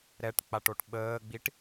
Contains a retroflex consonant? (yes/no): yes